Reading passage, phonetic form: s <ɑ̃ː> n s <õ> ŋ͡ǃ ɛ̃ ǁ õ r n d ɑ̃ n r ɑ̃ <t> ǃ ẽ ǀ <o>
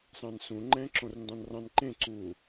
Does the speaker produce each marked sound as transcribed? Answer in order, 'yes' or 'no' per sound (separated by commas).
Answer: no, no, no, no